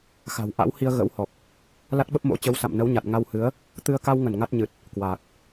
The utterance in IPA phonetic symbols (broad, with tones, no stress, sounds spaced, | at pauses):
x a̤˨˩ w ʔ a̰˧˥ w h i˧ ə̯ ɣ ə̰˧˥ w h ɔ˨˩ k̚ | l a˦˥ t̚ ɓ ə˦˥ p̚ m o̰˧˥ t͡ɕ ə˨˦ w s a̰˧˨ m n ə˨˦ w ɲ a˨˩ t̚ ŋ a˧ w h ɨ˨˦ ə̯ | t̪ ɨ˧ ə̯ k a˧ w ŋ ə˧˩ n ŋ a˦˥ t̚ ɲ ɨ˨˩ t̚ | k w aː˨˩ k̚